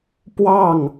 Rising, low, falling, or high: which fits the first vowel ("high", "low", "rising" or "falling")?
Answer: falling